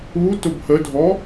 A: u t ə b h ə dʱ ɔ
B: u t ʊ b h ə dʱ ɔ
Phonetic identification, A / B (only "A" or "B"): B